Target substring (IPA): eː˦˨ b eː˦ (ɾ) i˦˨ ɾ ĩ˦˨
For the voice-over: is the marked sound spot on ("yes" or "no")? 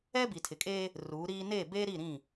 yes